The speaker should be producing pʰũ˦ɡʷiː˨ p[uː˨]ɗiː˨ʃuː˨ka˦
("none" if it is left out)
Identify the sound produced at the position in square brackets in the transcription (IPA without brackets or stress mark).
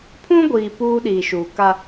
uː˦